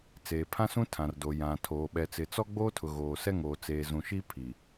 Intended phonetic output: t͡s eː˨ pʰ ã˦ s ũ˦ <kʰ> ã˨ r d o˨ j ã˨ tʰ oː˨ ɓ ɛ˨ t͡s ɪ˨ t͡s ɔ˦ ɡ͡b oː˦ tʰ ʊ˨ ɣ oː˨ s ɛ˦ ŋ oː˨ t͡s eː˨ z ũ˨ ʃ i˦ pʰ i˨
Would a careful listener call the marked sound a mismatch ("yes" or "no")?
yes